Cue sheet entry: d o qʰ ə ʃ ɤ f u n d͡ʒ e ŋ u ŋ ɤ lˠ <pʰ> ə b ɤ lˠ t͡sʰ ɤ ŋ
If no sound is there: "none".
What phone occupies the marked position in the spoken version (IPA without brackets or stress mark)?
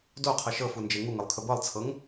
kʰ